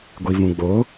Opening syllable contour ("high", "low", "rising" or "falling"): low